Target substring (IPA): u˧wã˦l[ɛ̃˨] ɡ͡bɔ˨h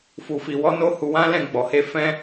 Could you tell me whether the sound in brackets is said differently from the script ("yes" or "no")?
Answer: yes